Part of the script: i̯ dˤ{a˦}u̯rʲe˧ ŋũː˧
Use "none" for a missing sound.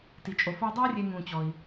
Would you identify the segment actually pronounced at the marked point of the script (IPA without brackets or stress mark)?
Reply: a˦